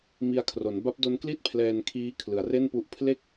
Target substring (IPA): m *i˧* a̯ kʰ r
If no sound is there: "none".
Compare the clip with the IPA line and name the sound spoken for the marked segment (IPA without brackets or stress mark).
i˧